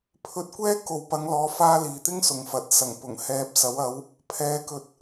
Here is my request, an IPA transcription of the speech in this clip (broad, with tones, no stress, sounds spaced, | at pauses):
pʰ ɵ˧ t̚ kʷ ɛː˥ k o˨ w p ɐ˨˧ ŋ l ɔː˨˧ f aː˧ l iː˨ t̪ ɪ˥ ŋ s ʊ˨ ŋ f ɐ˨ t̚ s ɐ˨˩ ŋ p ʊ˨˩ ŋ h ɛː˨ p̚ s ɐ˨˥ w ɐ˨˥ w | pʰ ɛː˨˧ k ɵ˨ t̚